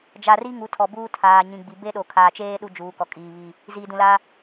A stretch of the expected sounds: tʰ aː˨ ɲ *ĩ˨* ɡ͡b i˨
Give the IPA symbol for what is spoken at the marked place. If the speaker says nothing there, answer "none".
ĩ˨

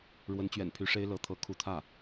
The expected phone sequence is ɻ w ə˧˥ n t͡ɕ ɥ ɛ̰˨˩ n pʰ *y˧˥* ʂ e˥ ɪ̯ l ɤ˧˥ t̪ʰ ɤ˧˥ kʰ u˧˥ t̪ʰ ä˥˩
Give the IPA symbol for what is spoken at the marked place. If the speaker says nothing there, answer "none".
y˧˥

